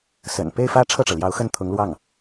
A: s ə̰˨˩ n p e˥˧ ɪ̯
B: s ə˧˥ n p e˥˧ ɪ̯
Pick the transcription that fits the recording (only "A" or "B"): A